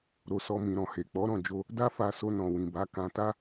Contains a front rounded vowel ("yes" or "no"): no